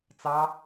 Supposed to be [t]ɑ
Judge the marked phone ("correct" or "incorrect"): incorrect